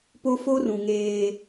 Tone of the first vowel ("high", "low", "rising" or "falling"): high